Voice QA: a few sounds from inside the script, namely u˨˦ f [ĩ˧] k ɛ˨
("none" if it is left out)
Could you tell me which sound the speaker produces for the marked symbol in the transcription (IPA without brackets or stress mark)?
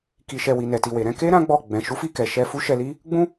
i˧